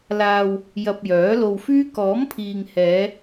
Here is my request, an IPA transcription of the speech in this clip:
l aː˧ w | j ɐ˧ p̚ j œː˨˥ l o˧ w f yː˥ k ɔː˨˥ m pʰ iː˨ ŋ h ɛː˨˧

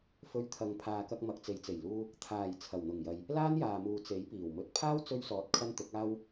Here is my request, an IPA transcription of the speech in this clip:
f ɵ˧ ɥ t̪ʰ ɐ˨˧ ŋ pʰ aː˨ k ɐ˧ k̚ m ɐ˨ k̚ t͡s e˨ j t͡s e˨˩ j l uː˧ | t̪ʰ aː˨˩ j t͡sʰ ɐ˨˩ w n̪ ʊ˨˩ ŋ j ɐ˨ j | l aː˥ n j aː˨ m uː˨ t͡s e˨˥ j p iː˨˩ w m ɵ˧ t̚ pʰ aː˥ w t͡s ɵ˧ ɥ s ɔː˨ t̚ kʰ ɐ˧ n t̪ ʊ˨˥ k̚ aː˥ w

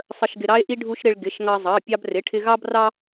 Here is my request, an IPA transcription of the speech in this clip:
sˤ ə˥ ʃ ɡ ɪ˥ ɾ ɑ˥ e̯ ʔ i˥ ɖʱ u˥ ʃ ɾ ɪ˥ ɭ ɡ ɪ˧˥˧ ʃ ŋ ɑ˥ zˤ ɑ˧˥˧ pʲ ɑ˥ b r ɪ˧˥˧ ʈʰ ɪ˥ ɣ ɑ˥ b r ɑ˥

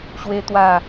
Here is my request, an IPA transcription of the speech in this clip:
ɕ w e˦ t̪ w a˥˧

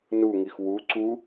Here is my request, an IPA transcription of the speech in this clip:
n u ŋ i x w u ǀ u

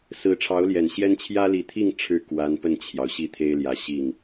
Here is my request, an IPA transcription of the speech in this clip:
s ɹ̩˧˥ ʈ͡ʂʰ ɑ˧˥ ʊ̯ l j ɛ˨˩ n ɕ j ɛ˥ n t͡ɕʰ j ä˥ l i˧˥ t̪ʰ i˥˧ ŋ ʈ͡ʂʰ ɻ̩˥˩ k w a˧˥ n p ə˥˩ n t͡ɕʰ j ɑ˩ ʊ̯ ɕ i˥˩ t̪ʰ e˥ ɪ̯ l j ä˧˥ ɕ i˥˩ ŋ

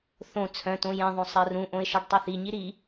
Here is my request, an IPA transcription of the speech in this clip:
θ õ t͡sʰ œ̃ t õ j ɛ̃ ðˤ õ sˤ ɜ r ũ ʔ õ ɪ̯ ʃ ɤ ɖ tˤ o θ i ɲ i ɾ i

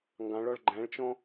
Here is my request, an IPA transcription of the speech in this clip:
ŋ ɡ ɑ̃ ɭ ɔ ɭ ɡ͡ǃ æ̃ ɭ t͡ʃ ɔ̃

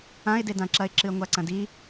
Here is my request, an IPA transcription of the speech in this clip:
ã ɪ̯ d e d ã ǁ ɐ ɪ̯ ǁ ɨ ə̯ ŋʷ a ǀ ɐ̃ d i

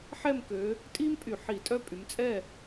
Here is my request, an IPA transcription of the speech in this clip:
ħ ɛ˥˨ m k ø˨˦ | tʼ i˥ m pʼ y˧˩˧ ħ i˧˩˧ tʼ œ˥˨ pʼ y˨˦ m t͡sʼ ɛ˥˨

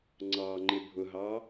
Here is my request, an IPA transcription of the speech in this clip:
ŋ͡ǀ ɑ ŋ͡ǃ ɪ bʱ ʊ ɦ ɑ

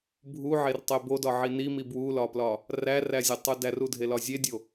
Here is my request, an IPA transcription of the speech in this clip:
bʱ u ʕ e r tˤ e b o d ɒ ʕ i n i m i b w u l ɒ p l ɒ | r æ r æ zʲ ɒ tˤ u d æ r u dʱ e l ɒ zʲ e dʲ o

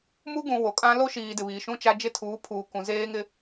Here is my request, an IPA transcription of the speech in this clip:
m u˦ ɡ ũ˨ w o˨ kʼ ã˦ l o˦ ʃ iː˨ d ɪ˨ β iː˨ ʃ ũ˦ t͡ʃ a˦ d͡ʒ ɪ˦ tʰ uː˨˦ pʰ uː˨ k ũ˨ z eː˦ ŋ ɪ˦

